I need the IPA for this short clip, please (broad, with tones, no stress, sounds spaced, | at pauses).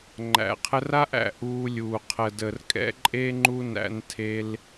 ŋ͡ǃ æ̰˨ qʰ ə˧ r a˦ ʔ æ̰˧ ʔ uː˧ lʲ uː˨ qʰ ə˨ d ə˨ r kʼ ɛ̰˦ ǃʼ e˦ ŋ͡ǃ u˦ n æ̰˧ n tʰ e˧ l